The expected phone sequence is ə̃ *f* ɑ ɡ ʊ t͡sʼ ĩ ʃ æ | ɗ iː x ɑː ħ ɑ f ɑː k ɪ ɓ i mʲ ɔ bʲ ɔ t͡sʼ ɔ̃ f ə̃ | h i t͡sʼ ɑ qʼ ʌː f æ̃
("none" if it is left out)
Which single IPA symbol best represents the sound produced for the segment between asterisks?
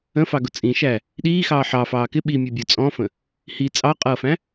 f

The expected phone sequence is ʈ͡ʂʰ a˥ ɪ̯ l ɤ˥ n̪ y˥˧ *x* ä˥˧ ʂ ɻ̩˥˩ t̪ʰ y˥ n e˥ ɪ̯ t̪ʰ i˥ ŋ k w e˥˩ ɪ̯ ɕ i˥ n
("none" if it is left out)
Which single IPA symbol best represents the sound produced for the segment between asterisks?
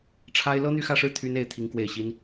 x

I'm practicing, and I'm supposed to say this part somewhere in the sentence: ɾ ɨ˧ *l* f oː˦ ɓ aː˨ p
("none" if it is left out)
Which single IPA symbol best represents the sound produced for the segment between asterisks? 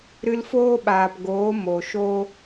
l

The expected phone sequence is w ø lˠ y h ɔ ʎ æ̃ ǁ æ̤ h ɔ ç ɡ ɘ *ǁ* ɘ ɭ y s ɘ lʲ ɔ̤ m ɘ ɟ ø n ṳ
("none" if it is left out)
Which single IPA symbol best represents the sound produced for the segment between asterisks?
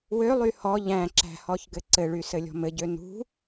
ǀ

